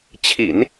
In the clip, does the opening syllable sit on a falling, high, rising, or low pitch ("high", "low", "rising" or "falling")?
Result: low